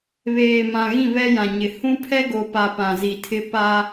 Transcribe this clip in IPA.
β eː˨ m ã˨ ɣ ĩ˦˨ β ɛ˦ j ã˨ ɲ ɪ˨ h ũ˦ pʰ ɛ˦ ɡ o˨ p a˨ p ã˨ z i˨ tʰ ɪ˦ p a˦

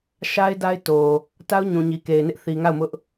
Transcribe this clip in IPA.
ʃ a˦ ɪ̯ d a˦ ɪ̯ t o˨ | t a˦ ʊ̯ ɲ ũ˨ ɲ i˨ k e˨ ɪ̯ n ɪ˦ ʔ θ i˨ ŋ a˦˨ ʊ̯ m ʊ˦ ʔ

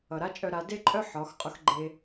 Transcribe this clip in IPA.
ʌ˩ ɾ a˥ t͡ʃʼ œ˧ ɾ a˩˧ d e˥ ǃʼ œ˥ ħ ɒ˩˧ x qʼ ʊ˧ x ɡ͡ǃ e˧

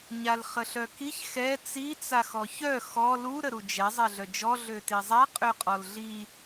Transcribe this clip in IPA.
ɲ a l χ ə ɬ œ k i ç x ɛ t͡s i t͡s a x ɔ ç œ x ɔ l u ɾ ə ɾ u d͡ʒ ɛ zˤ ɛ ɮ œ d͡ʒ ɔ ɮ ø t i zˤ a qʼ ø qʼ ɔ l ɮ i

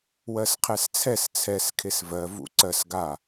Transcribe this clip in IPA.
w ɜ s qʰ ɛ s t͡sʰ ɛ s t͡sʰ ɛ s kʰ e s v ɜ v ṵ ǀ ɜ s ɡ a

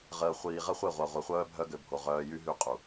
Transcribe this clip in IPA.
ʁ əː˨ χʷ iː˨ ʁ ə˦ χʷ e˦˨ ʁʷ a˨ ʁʷ ɛ˨ χʷ œː˦ bʱ œ˦ ɡ ø˨ bʱ o˨ ʁ œː˦ j y˦ ɦ y˦ qʼ u˨

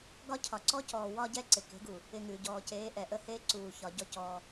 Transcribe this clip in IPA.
ɡ ɒ˦ cʰ ɒ˨ ǀ ɔ˦ c ɔː˨ w ɒ˧ ɟ ɛ˧ ǀ ɪ˨ k e̤˨˦ ɡ u˨ | ɪ˧ ŋ ʉː˨ ɟ ɔː˨ c eː˨˦ ʔ ɛ˨ ʔ ə˦ h eː˦ ǀ uː˨ ç ɒ˨ ɟ ɔ˦ c ɔː˧

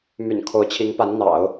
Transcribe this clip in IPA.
m y̰˨˩ n kʰ o˧˥ ʊ̯ t͡ɕʰ i˧˥ ŋ p a˧˥ n n̪ ɑ̰˨˩˦ ʊ̯

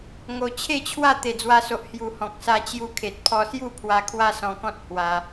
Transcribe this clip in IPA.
ŋ o˨˩ t͡ɕʰ e˥˧ t͡ɕʰ w a˥˧ t̪ e˨˩ d͡z w a˧ s o˨ ʔ h j u˨˩ h ɔ̃˨ k̚ s a˧ t͡ɕ j u˧ kʰ e˨ t̚ pʰ ɔ˧ s j u˥˧ pʰ w a˧ kʰ w a˦ s ɔ̃˧ k ɔ̃˦ t̚ h w a˧

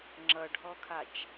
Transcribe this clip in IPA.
ŋ͡ǁ ʌ ɖʱ ɔ kʰ a t͡ʃ

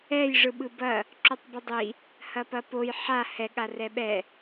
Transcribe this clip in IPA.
ɛ j ʐ ɯ ɓ ɯ b ɐ | ǁ u tˤ b ɯ dˤ i | h ɐ p ɐ p o j ħ a h ɛ ɠ a r ɛ ɓ ɛ

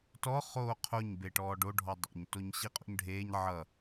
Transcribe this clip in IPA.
t ɔ χ oː qʰ o ɲ b e ʈ ɔː ɖ o ɖʱ ɔ dˤ o̰ ɲ t o ɲ ɕ i qʼ o̰ ɲ ɖʱ eː ɲ ʕ ʌ

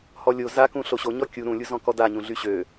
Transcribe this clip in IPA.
h ɔ lʲ o z a k ũ ɬ o ɕ o ɲ ɔ kʲ u ɾ ũ lʲ u z ɔ̃ k ɔ d a ɲ ũ ɮ y ɕ ø

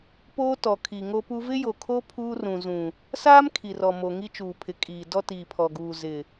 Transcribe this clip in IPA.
p oː˦ t ɔ˨ kʰ i˨ ŋ o˦ p u˦ v ɪ˦ j o˨ kʰ o˦ pʰ uː˦ r ũ˨ z ũ˨ | s aː˦ m kʰ i˨ r ɔ˨ m o˨ ŋ i˦ t͡ʃ uː˨ pʰ ɪ˨ kʼ iː˨ d ɔ˦ t iː˨ pʰ ɔ˨ ɡ uː˨ z ɪ˨

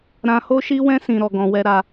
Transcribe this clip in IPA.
ɾ ã˧ h o˦ ʃ i˦ w ɛ̃˦ s ĩ˧ ɾ ɔ˧ ɡ ɔ̃˧ w ɛ˦ ɾ a˧

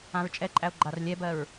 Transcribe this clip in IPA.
ã ɹ t͡ʃʼ ɛ ǃʼ æ o̯ ɡ͡ǃ a r lʲ ɛ b ɜ ɹ

